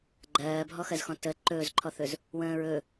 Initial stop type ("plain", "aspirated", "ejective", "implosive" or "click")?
click